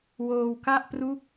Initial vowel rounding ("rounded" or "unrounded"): rounded